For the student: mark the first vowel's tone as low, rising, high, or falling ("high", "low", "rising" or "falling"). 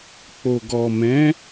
low